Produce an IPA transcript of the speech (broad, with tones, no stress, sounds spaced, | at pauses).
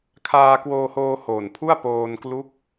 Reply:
kʰ aː˧ k w oː˧ h oː˧ h oː˨˩ n pʰ u˥˩ a̯ p oː˧ n k l u˦˥ k̚